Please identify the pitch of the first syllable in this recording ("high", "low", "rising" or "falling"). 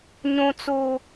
high